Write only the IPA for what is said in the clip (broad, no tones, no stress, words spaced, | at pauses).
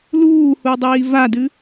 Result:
luːhudˤiː vadɨ